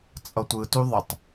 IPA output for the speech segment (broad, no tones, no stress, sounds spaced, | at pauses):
t͡sʼ ʌ tʷ ɯ t u ðˤ ʌ tˤ